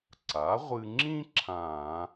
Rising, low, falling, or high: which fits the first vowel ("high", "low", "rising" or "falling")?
rising